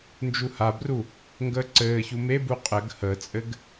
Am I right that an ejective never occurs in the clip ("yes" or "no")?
no